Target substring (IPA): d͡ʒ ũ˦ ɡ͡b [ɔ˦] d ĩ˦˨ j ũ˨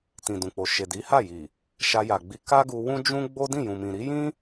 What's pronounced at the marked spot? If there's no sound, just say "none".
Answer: o˦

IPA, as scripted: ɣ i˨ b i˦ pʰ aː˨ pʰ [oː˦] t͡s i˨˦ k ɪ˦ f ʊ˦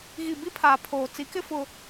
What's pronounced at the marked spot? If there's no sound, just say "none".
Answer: oː˨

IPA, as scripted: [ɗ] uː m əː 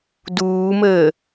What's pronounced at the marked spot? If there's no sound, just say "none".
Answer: d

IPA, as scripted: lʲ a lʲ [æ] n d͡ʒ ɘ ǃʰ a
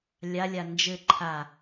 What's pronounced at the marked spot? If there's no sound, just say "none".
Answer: a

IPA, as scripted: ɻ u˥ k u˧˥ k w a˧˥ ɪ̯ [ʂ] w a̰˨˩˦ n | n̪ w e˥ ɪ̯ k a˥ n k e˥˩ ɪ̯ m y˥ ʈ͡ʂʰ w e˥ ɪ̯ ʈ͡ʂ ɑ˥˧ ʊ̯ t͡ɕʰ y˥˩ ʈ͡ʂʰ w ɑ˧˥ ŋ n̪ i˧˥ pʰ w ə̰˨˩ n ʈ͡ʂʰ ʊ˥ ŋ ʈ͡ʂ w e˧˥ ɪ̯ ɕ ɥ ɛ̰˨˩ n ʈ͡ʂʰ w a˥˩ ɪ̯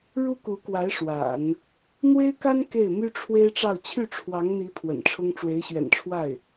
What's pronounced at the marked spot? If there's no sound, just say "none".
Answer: ʂ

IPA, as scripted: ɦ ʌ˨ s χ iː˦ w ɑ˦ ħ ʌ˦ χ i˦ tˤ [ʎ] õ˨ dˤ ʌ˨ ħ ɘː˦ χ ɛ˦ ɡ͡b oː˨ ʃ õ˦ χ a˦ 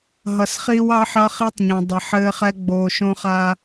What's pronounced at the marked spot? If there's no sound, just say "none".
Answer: ɲ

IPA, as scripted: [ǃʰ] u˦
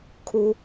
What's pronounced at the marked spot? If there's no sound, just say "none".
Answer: kʰ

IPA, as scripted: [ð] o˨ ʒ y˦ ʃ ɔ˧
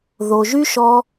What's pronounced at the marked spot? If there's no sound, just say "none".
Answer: ð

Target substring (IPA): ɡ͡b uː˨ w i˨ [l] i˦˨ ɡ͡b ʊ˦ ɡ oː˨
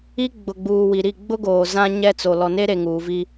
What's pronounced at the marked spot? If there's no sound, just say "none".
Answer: ɾ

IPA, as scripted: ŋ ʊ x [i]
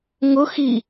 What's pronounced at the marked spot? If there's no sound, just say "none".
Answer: i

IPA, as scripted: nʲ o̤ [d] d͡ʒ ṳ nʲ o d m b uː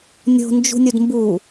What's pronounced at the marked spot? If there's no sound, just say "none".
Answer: n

